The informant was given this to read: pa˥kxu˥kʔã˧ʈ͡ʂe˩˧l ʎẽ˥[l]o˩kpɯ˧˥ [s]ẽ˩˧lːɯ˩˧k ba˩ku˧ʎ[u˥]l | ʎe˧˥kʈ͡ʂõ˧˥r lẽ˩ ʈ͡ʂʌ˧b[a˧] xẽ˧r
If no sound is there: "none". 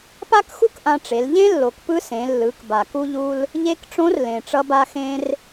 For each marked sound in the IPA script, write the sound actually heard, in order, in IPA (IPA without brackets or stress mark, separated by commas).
lː, s, u˧, a˧